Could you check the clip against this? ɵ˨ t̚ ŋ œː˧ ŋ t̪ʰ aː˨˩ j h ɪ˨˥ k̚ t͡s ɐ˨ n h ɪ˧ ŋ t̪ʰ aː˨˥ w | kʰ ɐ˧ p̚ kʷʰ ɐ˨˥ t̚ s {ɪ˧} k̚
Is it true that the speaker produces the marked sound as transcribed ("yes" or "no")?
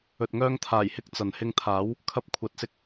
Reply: yes